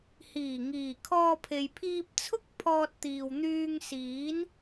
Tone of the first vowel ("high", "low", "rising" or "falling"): low